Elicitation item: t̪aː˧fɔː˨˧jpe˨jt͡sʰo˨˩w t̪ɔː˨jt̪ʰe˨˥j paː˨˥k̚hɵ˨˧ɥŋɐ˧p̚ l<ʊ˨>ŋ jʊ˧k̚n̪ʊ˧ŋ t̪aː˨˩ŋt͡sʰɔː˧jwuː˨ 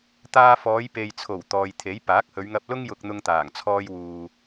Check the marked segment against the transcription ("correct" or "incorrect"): incorrect